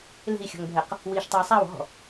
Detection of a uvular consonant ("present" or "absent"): present